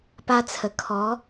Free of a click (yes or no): yes